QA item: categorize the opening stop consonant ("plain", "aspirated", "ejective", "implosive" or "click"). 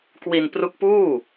plain